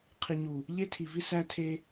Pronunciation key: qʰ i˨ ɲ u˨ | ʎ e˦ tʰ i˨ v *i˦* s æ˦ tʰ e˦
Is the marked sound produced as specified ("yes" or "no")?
yes